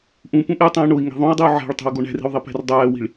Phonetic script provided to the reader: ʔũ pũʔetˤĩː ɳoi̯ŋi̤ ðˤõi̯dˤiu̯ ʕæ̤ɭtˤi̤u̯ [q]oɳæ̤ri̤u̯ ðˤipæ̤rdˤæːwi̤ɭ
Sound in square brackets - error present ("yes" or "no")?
yes